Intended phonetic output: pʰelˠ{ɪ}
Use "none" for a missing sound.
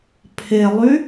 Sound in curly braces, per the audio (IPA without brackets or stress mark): y